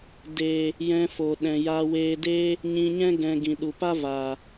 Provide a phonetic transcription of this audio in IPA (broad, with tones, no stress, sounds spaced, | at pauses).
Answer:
d eː˨ | j ɛ̃˧ f o˨ ɗ ɛ̃˨ j aː˧ w eː˧ d eː˦ | ɲ ĩ˧ ɲ ɛ̃˦ ɡ ɛ̃˨ ɡ ĩ˨ ɗ u˨ p a˦ v aː˨